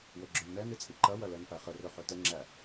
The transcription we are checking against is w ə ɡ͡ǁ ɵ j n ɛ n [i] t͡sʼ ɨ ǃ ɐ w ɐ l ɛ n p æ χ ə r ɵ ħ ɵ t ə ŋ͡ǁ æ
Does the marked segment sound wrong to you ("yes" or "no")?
yes